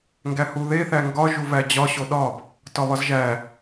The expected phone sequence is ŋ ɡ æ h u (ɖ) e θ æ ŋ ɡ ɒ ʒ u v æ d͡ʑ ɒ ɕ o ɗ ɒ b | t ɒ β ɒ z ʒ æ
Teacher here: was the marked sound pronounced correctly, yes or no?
no